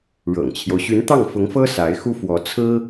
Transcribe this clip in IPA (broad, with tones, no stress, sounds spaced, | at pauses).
ɻ ɤ̰˨˩ ŋ t͡ɕʰ j o˦ ʊ̯ ɕ y˧˥ n t̪ ɑ˥˩ ŋ f ʊ˧˥ ŋ f ɤ˥ s a˧˥ ɪ̯ x u˥ f w ɔ˧˥ t͡sʰ ɹ̩˥